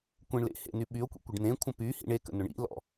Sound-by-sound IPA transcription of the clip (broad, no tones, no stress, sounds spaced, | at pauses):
kʷ ẽ ɳ l ḛ h ḛ n y ɓ y o̯ kʷ ḭ kʷ ə ɖ n ẽ kʷʰ ə̃ p y h ḭ ɳ e k ə̰ n ʊ ɳ ḭ l ɔ̰